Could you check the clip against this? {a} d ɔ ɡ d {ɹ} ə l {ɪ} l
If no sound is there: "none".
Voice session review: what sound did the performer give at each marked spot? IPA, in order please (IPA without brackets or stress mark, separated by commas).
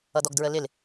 ʌ, ɹ, ɪ